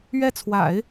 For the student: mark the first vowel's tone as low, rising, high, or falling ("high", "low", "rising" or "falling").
falling